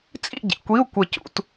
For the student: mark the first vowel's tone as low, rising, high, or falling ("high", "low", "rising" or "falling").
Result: falling